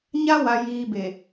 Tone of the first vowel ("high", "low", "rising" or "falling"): high